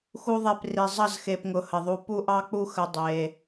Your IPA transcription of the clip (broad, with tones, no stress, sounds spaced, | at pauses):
x u˦ ðˤ e˦˨ p r i˨ zˤ ʌ˦˨ z x e˨ p ŋ ʊ˨ h ə˨ ðˤ u˧ p u˦ ʔ ɑ˦ k͡p u˦ x ə˧ dˤ e˧